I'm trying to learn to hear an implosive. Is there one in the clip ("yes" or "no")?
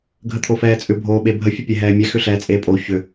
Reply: yes